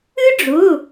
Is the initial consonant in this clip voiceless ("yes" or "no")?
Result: no